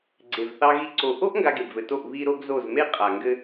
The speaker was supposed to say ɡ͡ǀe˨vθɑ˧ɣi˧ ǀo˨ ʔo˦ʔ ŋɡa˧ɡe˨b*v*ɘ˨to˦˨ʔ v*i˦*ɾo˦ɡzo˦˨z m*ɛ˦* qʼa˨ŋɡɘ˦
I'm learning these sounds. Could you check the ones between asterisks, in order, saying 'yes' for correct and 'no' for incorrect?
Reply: yes, yes, no

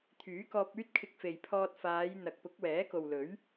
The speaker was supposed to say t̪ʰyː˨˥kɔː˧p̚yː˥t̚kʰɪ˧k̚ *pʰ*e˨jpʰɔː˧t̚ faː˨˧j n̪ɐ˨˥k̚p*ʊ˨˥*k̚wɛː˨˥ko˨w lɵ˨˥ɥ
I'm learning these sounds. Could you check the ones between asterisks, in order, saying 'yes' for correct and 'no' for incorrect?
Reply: no, yes

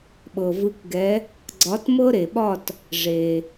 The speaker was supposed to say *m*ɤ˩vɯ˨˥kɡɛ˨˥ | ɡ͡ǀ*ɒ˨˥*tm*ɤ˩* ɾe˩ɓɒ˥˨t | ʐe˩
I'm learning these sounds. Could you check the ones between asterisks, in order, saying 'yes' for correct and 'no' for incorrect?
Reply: no, yes, no

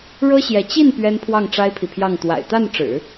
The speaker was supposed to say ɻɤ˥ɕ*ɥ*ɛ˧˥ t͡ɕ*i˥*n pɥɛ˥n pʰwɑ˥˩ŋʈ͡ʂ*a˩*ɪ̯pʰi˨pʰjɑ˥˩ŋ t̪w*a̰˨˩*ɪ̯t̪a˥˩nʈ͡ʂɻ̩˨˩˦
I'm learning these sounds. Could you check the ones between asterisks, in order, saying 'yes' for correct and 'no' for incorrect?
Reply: no, no, no, yes

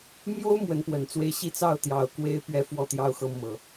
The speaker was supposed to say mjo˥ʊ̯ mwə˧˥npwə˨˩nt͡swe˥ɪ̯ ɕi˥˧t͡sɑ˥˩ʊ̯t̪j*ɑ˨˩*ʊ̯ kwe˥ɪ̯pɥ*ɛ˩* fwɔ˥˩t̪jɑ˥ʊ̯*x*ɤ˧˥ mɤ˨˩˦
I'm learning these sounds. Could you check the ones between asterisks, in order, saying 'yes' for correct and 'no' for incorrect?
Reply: yes, no, yes

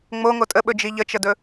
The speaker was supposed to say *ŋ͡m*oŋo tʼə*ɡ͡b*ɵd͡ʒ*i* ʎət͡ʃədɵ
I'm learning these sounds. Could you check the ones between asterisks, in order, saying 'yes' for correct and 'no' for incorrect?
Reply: yes, no, yes

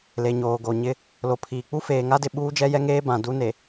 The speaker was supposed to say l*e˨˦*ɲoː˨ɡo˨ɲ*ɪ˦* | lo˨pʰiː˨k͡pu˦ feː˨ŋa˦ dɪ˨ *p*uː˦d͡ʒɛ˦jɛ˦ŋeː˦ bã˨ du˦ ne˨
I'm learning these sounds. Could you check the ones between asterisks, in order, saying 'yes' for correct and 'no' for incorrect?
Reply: no, yes, no

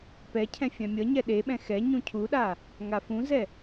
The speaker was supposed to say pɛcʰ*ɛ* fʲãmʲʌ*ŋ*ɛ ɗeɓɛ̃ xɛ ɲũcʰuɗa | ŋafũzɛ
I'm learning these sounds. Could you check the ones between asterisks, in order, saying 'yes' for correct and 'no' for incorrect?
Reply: no, no

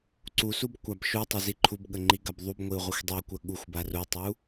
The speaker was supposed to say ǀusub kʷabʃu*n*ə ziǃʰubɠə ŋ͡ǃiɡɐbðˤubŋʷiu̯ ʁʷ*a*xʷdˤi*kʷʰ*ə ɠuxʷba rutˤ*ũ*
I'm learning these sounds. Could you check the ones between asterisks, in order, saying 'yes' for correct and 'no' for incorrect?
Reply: no, no, no, no

